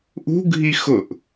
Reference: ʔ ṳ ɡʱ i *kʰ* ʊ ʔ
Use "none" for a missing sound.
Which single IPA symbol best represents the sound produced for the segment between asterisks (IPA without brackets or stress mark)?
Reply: x